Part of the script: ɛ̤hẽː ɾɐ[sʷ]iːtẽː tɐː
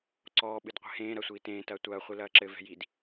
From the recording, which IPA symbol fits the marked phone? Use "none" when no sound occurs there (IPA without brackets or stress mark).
sʷ